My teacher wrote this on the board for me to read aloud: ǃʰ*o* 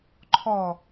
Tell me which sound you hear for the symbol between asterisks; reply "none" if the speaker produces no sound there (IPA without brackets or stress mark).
ɔ